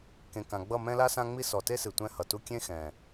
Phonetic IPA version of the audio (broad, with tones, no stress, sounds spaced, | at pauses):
k ẽ˨ k ã˨ ɡ͡b ʌ˦˨ m ɛ̃˦ l a˦ s ã˦ ŋ͡m i˦ s ɔ˨ t e˦ s ɨ˨ tʷ ɛ̃˦ h ʌ˨ t u˦ kʲ ẽ˦ x ɛ̃˨